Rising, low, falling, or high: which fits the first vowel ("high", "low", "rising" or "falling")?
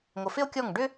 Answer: low